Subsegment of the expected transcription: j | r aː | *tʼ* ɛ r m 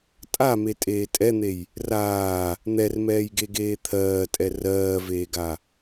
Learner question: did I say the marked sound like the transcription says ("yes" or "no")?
no